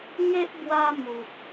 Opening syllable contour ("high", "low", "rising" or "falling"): high